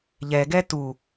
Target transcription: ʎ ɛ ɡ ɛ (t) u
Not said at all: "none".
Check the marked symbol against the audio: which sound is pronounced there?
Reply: t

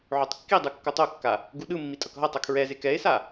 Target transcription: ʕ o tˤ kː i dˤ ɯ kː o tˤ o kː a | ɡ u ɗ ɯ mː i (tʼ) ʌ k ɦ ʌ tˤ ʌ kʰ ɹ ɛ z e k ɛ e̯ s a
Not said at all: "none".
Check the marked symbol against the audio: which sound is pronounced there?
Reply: tʼ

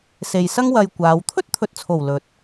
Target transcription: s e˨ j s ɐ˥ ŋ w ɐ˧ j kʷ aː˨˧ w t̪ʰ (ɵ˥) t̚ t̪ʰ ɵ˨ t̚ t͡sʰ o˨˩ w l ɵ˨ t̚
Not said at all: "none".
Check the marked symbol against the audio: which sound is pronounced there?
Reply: ɵ˥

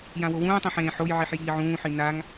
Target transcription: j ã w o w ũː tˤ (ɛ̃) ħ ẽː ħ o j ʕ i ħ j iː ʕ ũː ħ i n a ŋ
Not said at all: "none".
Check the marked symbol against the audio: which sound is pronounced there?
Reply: ẽ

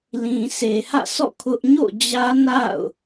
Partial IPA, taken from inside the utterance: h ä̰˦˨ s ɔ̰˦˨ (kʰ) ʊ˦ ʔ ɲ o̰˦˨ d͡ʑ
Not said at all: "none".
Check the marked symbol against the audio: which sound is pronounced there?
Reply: kʰ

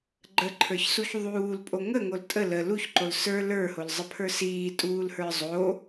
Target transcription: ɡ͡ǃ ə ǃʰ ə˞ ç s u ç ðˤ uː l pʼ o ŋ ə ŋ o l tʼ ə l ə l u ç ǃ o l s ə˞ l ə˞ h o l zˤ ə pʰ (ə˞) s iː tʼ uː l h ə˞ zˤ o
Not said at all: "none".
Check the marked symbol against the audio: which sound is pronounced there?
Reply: ə˞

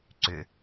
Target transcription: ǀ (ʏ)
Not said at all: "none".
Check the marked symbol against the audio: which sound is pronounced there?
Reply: ʏ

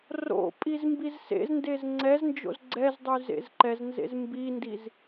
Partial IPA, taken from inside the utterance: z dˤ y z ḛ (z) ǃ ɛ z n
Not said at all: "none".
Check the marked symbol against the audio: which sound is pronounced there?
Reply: z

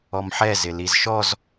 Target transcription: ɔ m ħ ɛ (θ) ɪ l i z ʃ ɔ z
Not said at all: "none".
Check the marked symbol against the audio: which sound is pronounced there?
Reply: z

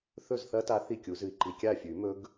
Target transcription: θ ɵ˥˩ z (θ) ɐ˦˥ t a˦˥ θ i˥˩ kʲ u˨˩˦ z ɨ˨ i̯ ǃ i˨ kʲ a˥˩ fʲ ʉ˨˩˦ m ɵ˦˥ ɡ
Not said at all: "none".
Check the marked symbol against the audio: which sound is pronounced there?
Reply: θ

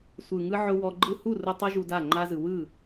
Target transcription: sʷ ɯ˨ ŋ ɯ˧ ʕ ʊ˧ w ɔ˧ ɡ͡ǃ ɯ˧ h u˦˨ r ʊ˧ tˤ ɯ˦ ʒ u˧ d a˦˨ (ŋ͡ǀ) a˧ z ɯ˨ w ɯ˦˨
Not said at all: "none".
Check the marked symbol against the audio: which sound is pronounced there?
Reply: ŋ͡ǃ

